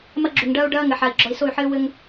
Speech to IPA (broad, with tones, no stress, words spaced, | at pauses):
mɐ˦ɡ͡ǁu˨ŋɖɐː˦u̯ ɖɐː˦ŋɘ˨ħa˨i̯ ɡ͡ǁɔ˨i̯so˦˨y̯ħɘː˦ wɘ˦ŋ